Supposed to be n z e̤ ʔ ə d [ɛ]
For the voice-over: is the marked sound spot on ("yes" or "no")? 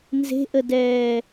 no